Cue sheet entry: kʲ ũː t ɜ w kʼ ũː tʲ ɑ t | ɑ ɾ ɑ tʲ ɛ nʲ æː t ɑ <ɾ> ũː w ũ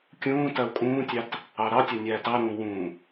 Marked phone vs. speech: correct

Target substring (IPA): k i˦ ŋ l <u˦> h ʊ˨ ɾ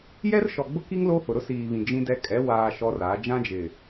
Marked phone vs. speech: incorrect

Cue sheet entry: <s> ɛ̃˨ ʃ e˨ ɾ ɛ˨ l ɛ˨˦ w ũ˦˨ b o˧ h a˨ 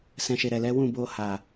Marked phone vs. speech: correct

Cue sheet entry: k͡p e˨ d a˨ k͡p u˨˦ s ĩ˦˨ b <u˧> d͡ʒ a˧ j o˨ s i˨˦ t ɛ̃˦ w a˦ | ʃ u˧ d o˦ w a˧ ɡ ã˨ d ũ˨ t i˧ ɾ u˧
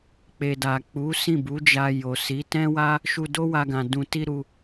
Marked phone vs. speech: incorrect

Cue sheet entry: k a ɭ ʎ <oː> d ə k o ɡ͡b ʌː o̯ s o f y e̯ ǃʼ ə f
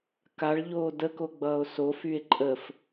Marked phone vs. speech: correct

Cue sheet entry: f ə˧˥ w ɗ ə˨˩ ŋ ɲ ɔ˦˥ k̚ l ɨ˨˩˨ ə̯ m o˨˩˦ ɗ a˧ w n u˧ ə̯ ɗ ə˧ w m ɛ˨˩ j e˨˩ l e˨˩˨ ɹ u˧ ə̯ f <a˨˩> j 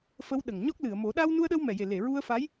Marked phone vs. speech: incorrect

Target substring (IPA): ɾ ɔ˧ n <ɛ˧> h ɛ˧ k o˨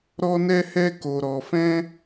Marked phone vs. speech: correct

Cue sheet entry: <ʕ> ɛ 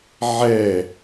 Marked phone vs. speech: correct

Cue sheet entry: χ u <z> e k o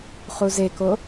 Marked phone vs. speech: correct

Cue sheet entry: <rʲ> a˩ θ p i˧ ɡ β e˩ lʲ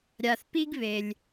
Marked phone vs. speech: incorrect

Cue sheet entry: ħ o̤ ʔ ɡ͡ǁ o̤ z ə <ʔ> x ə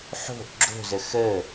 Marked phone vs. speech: incorrect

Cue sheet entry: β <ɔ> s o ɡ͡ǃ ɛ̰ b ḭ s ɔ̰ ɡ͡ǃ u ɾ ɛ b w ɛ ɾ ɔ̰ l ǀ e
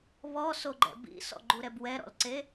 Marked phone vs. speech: correct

